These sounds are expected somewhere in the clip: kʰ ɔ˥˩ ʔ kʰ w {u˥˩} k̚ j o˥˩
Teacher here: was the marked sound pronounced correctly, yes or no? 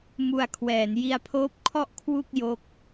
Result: yes